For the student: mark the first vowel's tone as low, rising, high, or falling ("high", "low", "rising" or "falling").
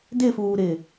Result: falling